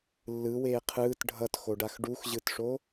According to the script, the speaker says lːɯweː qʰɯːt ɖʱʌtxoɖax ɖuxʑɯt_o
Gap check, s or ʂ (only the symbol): ʂ